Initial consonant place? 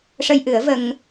retroflex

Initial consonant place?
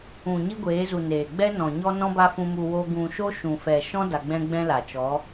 palatal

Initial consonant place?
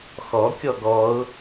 velar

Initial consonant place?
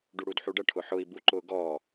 retroflex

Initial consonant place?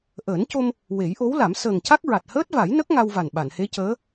glottal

